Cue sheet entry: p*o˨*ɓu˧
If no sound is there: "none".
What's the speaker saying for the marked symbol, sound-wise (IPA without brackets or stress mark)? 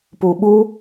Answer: u˨